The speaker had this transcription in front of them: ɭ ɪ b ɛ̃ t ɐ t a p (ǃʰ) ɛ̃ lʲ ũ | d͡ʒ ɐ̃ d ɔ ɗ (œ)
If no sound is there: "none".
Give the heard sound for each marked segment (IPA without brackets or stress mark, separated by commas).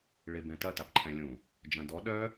ǃʰ, œ